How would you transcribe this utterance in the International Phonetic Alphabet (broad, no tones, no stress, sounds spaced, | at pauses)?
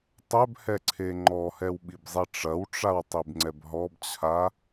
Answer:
tˤ ɛ b h ɛ ǀʰ e ŋ͡ǃ ɔ h ɛ w ɓ i b zˤ i ʈ͡ʂ ɐ w ʈ͡ʂ a w tˤ i b ŋ͡ǀ ɛ b ɦ ɔ b t͡ɕʰ a